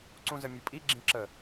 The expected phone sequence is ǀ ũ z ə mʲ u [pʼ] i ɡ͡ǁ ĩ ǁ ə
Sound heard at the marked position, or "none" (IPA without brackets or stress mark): pʼ